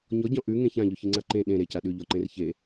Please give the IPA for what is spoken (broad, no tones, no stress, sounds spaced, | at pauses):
ɲ ɔ ɟ ɔ̃ ʔ ʉ ŋ ẽ ç ã ʎ ʉ ç i ŋ͡ǀ a ǃ ẽ ɗ ẽ ɾ e c a ɗ ʉ ʎ ɔ ǃ ẽ r ç e